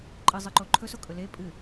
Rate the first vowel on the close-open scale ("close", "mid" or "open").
close